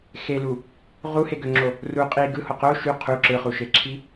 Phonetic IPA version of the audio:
x e l u | ʁ u h e ɡ ø ŋ͡ǁ o | r u qʼ i ɡ ɯ h o q o ʃ y qʰ u ǁ ɯ χ u ʃ e ǁʰ i

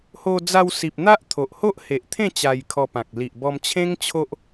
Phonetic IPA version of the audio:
h o˧ d͡z a˧ w s i˨ p̚ n̪ a˦ ʔ t̪ʰ o˨ ʔ h o˦ ʔ h e˨ ʔ t̪ʰ ẽ˥˧ t͡ɕ a˧ j kʰ ɔ˧ p ã˨ k̚ l i˨ ʔ b ɔ˧ m t͡ɕʰ ẽ˦ ŋ t͡ɕʰ o˦ ʔ

